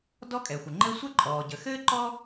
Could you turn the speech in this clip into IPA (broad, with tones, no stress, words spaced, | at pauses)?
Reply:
dɔ˥kʼɛ˩xʷə˩ŋ͡ǃɘ˥ sʷə˥ǃʼɔː˩ɟə˩ xɘː˥ ǃɔ˥